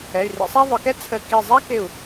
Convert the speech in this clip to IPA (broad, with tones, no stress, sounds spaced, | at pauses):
ɛ˩˧˩ y̯ r ḭ˧ sˤ æ˥ ðˤ ʊ˩˧ k ɛ˥ t͡sʰ ə˧˩ k i˧˩ zˤ æ˥ k ɪ˧˩ u̯